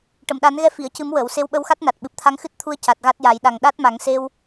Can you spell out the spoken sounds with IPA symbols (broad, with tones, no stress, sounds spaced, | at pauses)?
ʈ ə˨˩˨ m ɗ a˨˩˦ n ɣ ɛ˧ f i˨˩˨ ə̯ c ɨ˨˩˦ m w əː˨˩˨ w s e˧˥ w ɓ ə˧ w x a˦˥ t̚ n a˨˩ t̚ ɓ ɨ˨˩ p̚ t̪ʰ a˧˥ ŋ x ɨ˦˥ t̚ t̪ʰ u˧ ə̯ c a˨˩ t̚ ɣ a˦˥ t̚ j a˨˩˦ j ɗ a˨˩ ŋ ɗ a˦˥ t̚ m a˨˩˦ ŋ s e˧ w